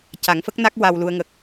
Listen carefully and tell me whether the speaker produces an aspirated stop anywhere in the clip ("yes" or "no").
no